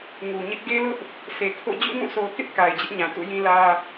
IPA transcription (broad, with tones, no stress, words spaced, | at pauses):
ŋu˨ɲɪ˦ʔ ɡe˦lʊ˦ʔ | se˨kʰo̰˦˨ d͡ʑṵ˦˨ŋũ˦˨sʰo˨ʊ̯kɪ˦ʔ ka˨ɪ̯d͡ʑɪ˦ʔɲã˨ tṵ˦˨jĩ˦lä˦